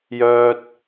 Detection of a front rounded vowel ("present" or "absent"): present